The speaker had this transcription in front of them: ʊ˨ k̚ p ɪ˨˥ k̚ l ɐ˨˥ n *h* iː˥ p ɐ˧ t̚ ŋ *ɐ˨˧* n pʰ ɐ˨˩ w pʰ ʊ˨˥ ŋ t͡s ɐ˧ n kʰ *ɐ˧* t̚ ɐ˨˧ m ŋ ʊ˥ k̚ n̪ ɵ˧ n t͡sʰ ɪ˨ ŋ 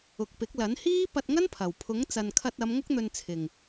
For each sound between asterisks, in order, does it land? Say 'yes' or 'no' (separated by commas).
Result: yes, no, yes